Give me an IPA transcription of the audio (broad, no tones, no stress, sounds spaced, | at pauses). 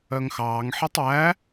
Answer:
œ ŋ x ɑː ŋ ħ e tˤ w æ